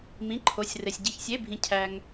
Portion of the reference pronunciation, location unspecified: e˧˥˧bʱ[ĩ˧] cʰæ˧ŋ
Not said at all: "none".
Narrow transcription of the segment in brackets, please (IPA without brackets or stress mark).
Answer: ĩ˧